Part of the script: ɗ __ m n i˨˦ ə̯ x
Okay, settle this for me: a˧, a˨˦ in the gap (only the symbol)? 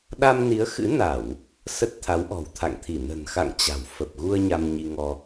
a˧